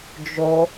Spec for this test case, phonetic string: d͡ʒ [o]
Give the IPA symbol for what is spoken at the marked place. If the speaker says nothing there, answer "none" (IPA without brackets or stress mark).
o